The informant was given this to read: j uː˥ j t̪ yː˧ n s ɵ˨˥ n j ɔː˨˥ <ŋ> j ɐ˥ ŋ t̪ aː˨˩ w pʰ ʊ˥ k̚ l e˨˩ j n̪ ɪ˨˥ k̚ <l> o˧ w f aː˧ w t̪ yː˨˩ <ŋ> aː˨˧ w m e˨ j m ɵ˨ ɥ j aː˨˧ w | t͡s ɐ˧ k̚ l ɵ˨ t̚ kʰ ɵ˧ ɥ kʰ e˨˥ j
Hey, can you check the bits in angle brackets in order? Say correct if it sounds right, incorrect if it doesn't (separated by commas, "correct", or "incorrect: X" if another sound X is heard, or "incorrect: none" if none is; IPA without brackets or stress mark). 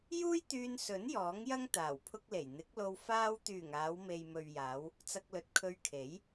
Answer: correct, correct, correct